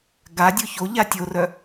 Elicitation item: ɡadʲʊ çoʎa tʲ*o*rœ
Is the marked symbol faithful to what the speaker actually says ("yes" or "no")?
yes